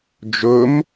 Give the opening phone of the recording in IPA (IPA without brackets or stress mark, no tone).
d͡ʒ